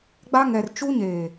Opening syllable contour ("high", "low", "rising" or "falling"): high